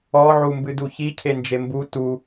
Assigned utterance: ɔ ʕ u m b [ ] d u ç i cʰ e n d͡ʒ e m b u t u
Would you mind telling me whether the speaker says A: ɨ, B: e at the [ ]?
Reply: A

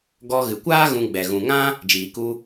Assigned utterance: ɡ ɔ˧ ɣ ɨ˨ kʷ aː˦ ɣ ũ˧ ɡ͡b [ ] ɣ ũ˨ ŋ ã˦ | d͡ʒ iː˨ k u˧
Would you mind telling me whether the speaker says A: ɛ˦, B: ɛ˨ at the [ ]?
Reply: B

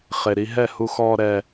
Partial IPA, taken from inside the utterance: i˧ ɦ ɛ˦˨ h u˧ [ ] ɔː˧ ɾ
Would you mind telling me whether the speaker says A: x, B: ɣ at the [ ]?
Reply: A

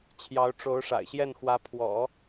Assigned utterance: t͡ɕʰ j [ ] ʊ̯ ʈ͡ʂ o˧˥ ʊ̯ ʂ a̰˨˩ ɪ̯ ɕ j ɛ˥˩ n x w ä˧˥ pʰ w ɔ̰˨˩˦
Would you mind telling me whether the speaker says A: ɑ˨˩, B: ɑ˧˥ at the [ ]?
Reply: B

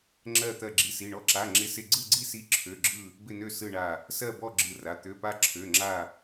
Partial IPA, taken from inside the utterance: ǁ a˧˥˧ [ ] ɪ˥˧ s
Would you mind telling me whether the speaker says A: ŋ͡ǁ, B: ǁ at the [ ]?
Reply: A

